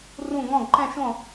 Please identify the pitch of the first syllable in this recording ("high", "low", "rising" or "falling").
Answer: falling